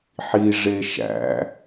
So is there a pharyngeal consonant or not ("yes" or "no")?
yes